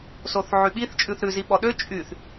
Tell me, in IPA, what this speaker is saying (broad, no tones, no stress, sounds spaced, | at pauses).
s o θ ʕ y ɓ i θ t͡ʃʼ ʉ θ ɾ ʉ z i ɓ ɔ ɗ ø t͡ʃʼ y θ